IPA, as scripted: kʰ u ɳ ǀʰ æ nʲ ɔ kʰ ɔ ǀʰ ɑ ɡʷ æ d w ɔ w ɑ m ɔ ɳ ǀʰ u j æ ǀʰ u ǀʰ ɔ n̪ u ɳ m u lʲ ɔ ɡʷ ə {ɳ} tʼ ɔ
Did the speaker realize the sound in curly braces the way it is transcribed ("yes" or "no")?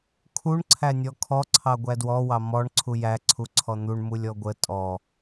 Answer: no